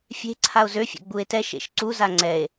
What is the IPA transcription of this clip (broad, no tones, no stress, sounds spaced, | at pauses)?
fʲ e̤ ǀʰ a o̯ z ø fʲ ɛ̰ ɡ͡b u e̯ t ɛ ʃ ḛ ʃ ǀ u z a ŋ͡ǀ ɛ e̯